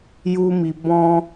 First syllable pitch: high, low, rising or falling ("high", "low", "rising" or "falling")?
high